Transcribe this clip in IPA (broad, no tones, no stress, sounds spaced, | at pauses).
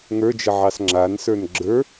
ŋ ə˞ d͡ʒ ə ʕ ɑ s ŋ͡ǁ a n s ə˞ n ɡ͡ǁ ə˞